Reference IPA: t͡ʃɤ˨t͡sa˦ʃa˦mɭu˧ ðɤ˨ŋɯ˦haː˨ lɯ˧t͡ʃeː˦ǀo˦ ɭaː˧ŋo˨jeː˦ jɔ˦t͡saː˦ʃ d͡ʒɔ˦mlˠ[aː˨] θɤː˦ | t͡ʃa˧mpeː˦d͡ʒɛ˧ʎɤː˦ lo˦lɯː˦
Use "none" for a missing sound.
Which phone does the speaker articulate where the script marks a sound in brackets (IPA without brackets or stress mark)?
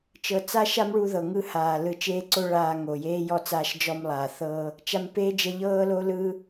aː˨